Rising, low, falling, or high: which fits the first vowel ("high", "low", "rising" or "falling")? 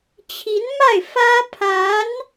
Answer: rising